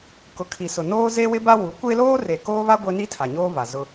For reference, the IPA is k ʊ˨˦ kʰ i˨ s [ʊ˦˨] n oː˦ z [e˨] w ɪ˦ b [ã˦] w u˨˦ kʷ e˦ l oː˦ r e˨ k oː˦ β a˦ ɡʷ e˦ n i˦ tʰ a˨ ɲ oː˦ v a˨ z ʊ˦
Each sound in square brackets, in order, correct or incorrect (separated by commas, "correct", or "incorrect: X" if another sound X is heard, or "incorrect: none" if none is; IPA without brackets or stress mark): incorrect: ʊ˨, incorrect: e˦, incorrect: a˦